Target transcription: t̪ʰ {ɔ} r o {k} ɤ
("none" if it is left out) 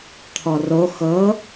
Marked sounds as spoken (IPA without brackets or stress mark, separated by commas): ɔ, x